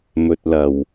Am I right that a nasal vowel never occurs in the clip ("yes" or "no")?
yes